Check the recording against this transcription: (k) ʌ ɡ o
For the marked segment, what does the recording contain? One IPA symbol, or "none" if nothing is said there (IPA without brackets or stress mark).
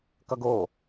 k